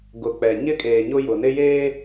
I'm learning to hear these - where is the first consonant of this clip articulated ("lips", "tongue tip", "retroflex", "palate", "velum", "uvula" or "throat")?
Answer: velum